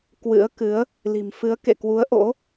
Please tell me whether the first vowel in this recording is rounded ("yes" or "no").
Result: no